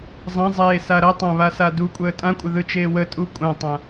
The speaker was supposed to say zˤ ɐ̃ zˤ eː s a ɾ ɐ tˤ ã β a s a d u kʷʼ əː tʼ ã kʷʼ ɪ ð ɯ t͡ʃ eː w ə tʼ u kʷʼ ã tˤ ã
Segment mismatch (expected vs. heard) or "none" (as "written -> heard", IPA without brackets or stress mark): none